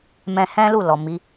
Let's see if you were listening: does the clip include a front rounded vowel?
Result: no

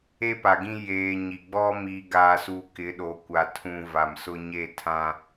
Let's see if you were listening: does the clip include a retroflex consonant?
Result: no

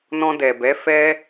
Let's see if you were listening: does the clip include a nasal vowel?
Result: yes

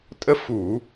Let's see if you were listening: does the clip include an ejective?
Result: yes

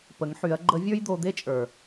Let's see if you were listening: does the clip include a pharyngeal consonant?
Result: yes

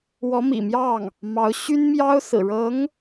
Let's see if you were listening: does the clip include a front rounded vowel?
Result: yes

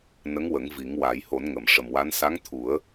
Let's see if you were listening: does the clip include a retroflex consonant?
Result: yes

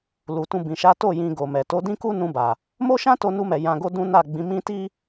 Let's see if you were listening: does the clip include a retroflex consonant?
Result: no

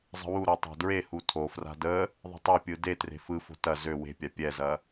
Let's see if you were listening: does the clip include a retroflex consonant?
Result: no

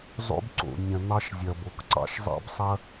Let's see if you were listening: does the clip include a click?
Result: yes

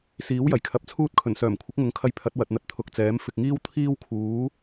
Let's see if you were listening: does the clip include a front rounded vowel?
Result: yes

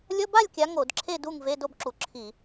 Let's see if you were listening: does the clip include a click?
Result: yes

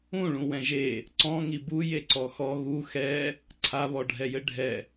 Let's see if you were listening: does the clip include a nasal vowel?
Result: yes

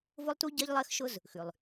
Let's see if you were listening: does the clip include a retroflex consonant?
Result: no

